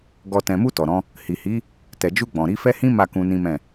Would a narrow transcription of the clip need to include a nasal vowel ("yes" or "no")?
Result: yes